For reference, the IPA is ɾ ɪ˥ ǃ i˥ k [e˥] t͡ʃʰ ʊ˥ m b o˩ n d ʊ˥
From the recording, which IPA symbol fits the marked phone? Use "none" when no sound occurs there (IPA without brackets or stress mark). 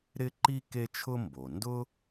e˥